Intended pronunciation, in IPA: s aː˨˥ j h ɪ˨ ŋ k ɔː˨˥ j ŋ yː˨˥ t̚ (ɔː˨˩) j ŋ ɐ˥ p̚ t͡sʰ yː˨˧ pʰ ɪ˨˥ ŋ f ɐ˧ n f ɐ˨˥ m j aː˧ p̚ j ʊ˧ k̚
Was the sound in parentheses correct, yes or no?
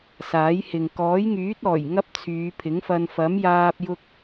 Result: yes